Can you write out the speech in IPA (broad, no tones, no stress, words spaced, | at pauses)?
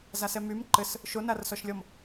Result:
zasɛmym ǃɘs | ʃonarsɔʃlʲɔm